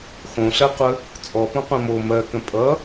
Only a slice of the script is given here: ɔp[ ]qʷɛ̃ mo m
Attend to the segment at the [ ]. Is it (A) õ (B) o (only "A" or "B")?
A